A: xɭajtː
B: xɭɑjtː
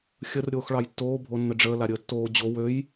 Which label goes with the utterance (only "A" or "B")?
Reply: B